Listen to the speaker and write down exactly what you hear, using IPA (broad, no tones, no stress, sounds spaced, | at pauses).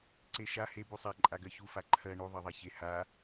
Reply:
ǀ e ʃ a h e b u sˤ a ǃʼ a ɡ ɜ ç u f a ǃʰ ɜ ɳ u ðˤ ɜ ðˤ a ç e h a